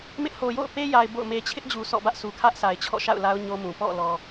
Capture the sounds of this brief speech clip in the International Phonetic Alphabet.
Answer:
m ɪ˦ ʔ h o˨ j o̰˦˨ ʊ̯ p e˦ j a˨ ɪ̯ b o̰˦˨ ʊ̯ m e˦ t͡ɕʰ ɪ˦ ʔ d͡ʑ u˨ s ɔ̰˦˨ b ä˦ ʔ s u˨ kʰ ä˦ ʔ sʰ a˨ ɪ̯ t͡ɕʰ ɔ̰˦˨ ʃ a̰˦˨ ʊ̯ l a˦ ʊ̯ ɲ o˦ m ũ˨ p ɔ̰˦˨ l ɔ˨

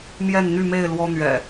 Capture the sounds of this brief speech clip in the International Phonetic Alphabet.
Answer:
m j ɛ˥˨ n n̪ y˥˨ m e˥˨ ɪ̯ l w ɔ˦ n̪ ɥ ɛ̰˨˩

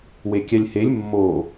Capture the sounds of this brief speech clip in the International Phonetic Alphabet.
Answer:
w e kʲ æ lʲ h e lʲ mː o

